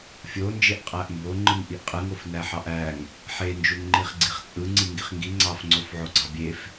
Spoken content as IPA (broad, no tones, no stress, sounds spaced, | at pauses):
fʲ o n d͡ʒ e ʔ qʼ æ ʔ m b o ŋ͡ǃ ɯ ŋ ʔ i ʔ qʼ ɯ ŋ o f n æ ħ ɑ ʔ æ ŋ | ħ e n d͡ʒ u ŋ ŋ͡ǃ i χ ɡ͡ǀ i χ t͡sʼ ɯ ŋ͡ǀ i ŋ ɡ i χ ŋ ɡ i ŋ͡ǀ ɑ f ŋ͡ǀ o f ʕ o ɡ͡ǀ ɑ bʲ e f